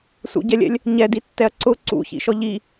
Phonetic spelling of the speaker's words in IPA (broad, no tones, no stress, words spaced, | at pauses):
sṵɟɛlʲɛ̰lʲ | ɲɛditːɛɐ̯ ǀʊ ǀṵçḭʃɔ ʎi